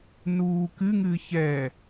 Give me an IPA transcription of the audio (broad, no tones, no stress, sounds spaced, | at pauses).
n uː k ɨ ŋ ɨː ç ɛ